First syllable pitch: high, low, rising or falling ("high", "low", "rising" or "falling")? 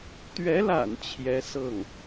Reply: rising